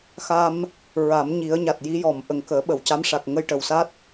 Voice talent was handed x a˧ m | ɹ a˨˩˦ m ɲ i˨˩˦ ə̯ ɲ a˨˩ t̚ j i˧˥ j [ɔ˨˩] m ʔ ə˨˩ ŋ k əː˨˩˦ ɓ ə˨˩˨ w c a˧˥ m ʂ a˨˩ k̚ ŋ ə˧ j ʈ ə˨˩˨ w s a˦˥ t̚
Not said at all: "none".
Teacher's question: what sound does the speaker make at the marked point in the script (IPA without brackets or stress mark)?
ɔ˨˩˨